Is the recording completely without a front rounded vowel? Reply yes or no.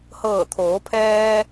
yes